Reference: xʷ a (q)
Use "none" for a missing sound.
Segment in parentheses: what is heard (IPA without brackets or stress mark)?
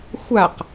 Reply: q